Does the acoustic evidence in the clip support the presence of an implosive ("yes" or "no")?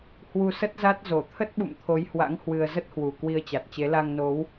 yes